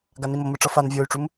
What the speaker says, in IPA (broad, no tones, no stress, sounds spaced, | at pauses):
ɡ a n i m o m ɯ ʈ͡ʂ ʌ f a n vʲ o y̯ ʈ͡ʂ u m